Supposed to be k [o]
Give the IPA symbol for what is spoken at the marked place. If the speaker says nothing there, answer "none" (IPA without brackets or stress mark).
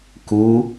u